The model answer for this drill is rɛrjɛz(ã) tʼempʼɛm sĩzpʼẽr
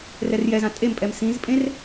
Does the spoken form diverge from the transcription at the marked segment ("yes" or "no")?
no